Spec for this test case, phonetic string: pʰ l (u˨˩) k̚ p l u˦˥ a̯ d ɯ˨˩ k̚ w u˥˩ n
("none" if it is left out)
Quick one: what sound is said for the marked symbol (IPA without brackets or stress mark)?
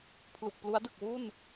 u˨˩